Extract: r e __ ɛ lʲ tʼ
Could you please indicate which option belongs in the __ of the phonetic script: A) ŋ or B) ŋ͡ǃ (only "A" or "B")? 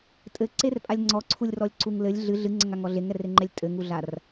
B